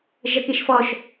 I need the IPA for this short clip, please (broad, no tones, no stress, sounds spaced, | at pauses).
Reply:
ʒ ʌ k i ʃ f ɔ ʃ